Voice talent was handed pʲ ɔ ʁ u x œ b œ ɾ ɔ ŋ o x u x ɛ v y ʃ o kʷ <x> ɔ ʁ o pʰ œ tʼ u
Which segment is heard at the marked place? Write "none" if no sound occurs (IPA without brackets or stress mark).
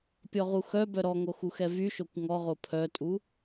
ŋ